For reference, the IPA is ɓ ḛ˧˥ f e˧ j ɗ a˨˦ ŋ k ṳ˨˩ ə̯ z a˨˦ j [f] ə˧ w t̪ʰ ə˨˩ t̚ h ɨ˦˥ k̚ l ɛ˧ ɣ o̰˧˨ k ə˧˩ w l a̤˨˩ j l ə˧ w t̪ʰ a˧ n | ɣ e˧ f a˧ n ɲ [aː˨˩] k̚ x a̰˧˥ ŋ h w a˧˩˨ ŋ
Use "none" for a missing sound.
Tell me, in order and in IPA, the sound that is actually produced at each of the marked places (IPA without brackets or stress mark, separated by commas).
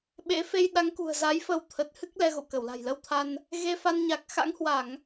f, a˨˩